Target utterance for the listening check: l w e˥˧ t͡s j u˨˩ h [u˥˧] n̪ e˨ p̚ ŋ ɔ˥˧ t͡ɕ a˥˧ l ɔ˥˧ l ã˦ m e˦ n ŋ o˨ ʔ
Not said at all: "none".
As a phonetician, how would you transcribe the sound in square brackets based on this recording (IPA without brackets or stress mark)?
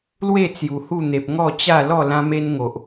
u˥˧